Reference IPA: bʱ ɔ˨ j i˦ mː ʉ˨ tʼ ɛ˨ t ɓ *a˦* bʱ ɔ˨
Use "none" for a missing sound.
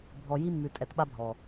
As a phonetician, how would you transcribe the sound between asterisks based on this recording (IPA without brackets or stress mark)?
a˦